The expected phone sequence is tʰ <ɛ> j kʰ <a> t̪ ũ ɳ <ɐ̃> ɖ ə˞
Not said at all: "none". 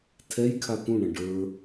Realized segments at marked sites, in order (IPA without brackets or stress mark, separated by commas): ɛ, a, ɐ̃